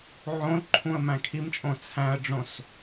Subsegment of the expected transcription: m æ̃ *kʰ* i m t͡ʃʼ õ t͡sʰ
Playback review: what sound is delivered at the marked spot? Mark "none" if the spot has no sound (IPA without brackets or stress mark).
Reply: kʰ